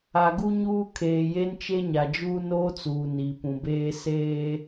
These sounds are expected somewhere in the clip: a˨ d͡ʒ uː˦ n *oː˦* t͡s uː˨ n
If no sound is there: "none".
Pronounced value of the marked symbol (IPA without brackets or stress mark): oː˦